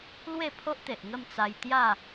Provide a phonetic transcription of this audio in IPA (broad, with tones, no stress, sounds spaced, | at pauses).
l w e˥˧ pʰ o˦ ʔ t̪ e˨ ʔ ŋ ə˥˧ m t͡s a˧ j t̪ j a˥˧